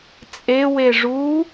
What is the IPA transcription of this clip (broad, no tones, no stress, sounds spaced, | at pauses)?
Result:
t͡sʼ e w e ʐ u